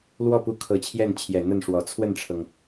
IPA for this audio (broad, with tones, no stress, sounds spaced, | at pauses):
l w ɔ˥˩ p u˧˥ kʰ ɤ˨˩ t͡ɕʰ j ɛ˥˩ n t͡ɕʰ j ɛ˨˩ n̪ ə˥˩ n ʂ w ɔ˨˩ t͡sʰ w ə˥˩ n ʈ͡ʂʰ ɤ˩ ŋ